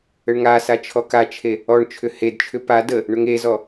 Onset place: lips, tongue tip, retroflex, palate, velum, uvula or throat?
retroflex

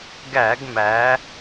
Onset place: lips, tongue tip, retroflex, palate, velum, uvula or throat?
velum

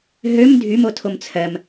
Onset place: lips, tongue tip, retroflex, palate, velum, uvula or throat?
throat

